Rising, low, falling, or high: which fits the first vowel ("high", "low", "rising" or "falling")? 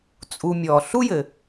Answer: low